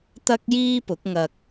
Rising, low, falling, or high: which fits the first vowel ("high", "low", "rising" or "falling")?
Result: high